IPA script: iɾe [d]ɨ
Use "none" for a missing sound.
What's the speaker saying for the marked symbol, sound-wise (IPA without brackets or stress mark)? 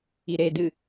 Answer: d